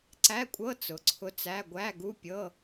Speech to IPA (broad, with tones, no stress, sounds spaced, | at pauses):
ǀ æ˧˥˧ kʷʼ ɤ˧˥˧ t͡s ʊ˩˧ ǀʰ ʊ˧˥ t͡s æ˧˥˧ ɡʷ æ˧˥˧ ɡ u˧˥˧ pʲ ɤ˧˥˧